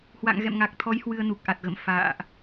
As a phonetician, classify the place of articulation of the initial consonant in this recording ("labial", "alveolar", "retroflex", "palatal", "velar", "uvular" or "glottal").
glottal